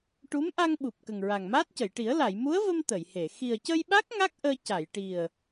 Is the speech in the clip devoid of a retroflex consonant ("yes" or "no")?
no